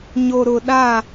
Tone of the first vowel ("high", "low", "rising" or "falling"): low